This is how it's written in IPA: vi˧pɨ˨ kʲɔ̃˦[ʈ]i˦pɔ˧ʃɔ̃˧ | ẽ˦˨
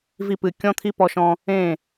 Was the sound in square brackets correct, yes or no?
no